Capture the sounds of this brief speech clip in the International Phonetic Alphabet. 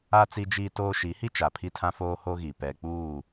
a˦ t͡s i˦ d͡ʒ iː˦ t oː˦ ʃ i˨˦ h i˦ t͡ʃ a˨ pʰ i˦ tʰ ã˦ f oː˦ h o˦ ɣ i˨ p ɛ˨ k͡p uː˦˨

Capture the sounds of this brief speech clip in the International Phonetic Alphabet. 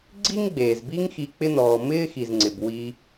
ɡ͡ǀ i˥ ŋ ɡ͡b eː˩ z b i˦ ŋ x i˨ k͡p ɪ˦ n ɔː˩ m ɪː˥ x i˩ z ŋ͡ǀ ɪ˩ b w i˨

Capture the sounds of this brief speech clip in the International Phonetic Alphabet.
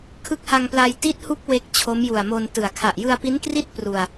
kʰ ɯ˦˥ k̚ h a˧ ŋ p l a˧ j t i˦˥ t̚ h u˦˥ k̚ w e˦˥ k̚ t͡ɕʰ o˦˥ m j u˨˩ a̯ m o˧ n t ɯ˨˩ a̯ kʰ a˨˩ ʔ j ɯ˧ a̯ p i˦˥ n k r i˥˩ t̚ p r u˧ a̯

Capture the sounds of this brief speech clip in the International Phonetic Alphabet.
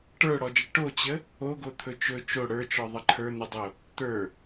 ʈ ə˞ ɽ ɔ d͡ʒ ə ʈ o t͡ɕ ə | o ɡ o t̪ʰ ɵ t͡ʃ ɵ t͡ʃ o ɽ ə˞ t͡ʃ ɔ ðˤ ə ǃʰ ə˞ n̪ ɵ dˤ o | t̪ ə˞

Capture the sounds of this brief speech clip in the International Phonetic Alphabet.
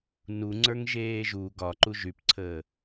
n u ŋ͡ǀ ə˞ ŋ ʒ eː ʒ u ɡ ɒ ǃ u ʒ y p ǀʰ əː

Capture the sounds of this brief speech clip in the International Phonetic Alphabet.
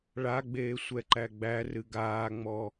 ɭ a ɡ͡b eː sʷ ɛ ǃ æ ɡ͡b æ r ɨ ɡ aː ŋ͡m ɔ

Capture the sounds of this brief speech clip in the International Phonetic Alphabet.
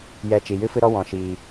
j ɛ˦˨ t͡ʃ i˨ j ɨ˦ f ɨ˦ ɾ ɔ˦ w ɔ̃˨ ʃ iː˨

